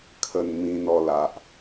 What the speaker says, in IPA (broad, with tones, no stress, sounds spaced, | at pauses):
kʰ ə˨˩ n m ĩ˧ n ɔ˧ l a˨ ʔ